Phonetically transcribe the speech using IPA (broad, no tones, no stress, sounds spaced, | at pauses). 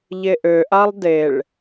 ʎ e ʔ ø ʔ a lˠ d e ɭ